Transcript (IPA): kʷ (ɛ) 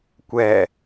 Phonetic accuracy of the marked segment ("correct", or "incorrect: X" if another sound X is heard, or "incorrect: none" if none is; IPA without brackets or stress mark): correct